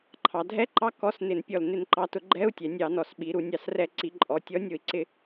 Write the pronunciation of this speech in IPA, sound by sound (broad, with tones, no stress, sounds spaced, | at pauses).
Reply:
ǃʰ ɑ˩˧ dʱ ɛ˧˥˧ ǃ ɑ˧˥˧ k ɔ˧˥˧ s n ɪ˧˩˧ n pʲ ɔ˧˩ l n ɪ˧˩˧ n ǃ ɑ˩˧ t ʊ˧˩˧ ɡ͡ǃ ɛ˧˥˧ u̯ tʲ ɛ˩˧ nʲ ɑ˧˩˧ n ɔ˩˧ s ɓ i˩˧ ɾ u˩˧ nʲ ɑ˧˩˧ s r ɛ˧˩˧ ǀ i˩˧ ǃʼ ɔ˩˧ tʲ ɔ˨˥ nʲ ʊ˧˩˧ i̯ ǀ ɪ˧˩˧